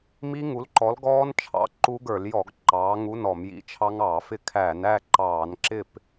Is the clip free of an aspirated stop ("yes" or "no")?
no